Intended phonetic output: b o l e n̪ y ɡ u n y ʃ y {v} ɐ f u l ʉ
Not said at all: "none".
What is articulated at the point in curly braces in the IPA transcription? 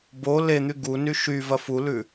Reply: v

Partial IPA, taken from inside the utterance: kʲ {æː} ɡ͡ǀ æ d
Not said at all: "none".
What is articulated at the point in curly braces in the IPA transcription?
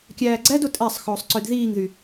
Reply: æː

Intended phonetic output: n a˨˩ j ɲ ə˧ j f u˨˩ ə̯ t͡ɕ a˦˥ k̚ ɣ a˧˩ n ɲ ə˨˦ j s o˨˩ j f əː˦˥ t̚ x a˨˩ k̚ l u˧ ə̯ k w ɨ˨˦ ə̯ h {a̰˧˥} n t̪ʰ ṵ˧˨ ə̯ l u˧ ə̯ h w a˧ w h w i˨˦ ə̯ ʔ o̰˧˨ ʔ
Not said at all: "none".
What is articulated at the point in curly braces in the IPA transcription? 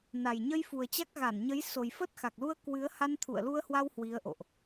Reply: a˧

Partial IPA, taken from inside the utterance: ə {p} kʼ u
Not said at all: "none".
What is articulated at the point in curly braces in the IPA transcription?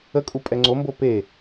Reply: none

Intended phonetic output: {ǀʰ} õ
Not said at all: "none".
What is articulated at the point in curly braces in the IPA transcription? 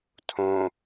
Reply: tʰ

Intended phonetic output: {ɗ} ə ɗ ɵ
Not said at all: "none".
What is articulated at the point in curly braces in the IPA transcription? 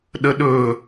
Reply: ɗ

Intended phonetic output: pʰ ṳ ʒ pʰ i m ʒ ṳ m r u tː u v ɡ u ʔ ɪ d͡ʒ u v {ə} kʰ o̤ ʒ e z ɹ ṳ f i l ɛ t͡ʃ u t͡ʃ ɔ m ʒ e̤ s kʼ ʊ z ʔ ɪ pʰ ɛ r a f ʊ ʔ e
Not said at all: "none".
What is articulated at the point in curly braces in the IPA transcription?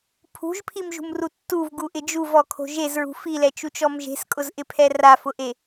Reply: ɔ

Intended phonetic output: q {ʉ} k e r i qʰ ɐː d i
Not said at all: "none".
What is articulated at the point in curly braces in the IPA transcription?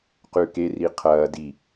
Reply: ʉ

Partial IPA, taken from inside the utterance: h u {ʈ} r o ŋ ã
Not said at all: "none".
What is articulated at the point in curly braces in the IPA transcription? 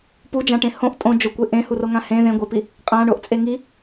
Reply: none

